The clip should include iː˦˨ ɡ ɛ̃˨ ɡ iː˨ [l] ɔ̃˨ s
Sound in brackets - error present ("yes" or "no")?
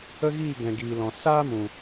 no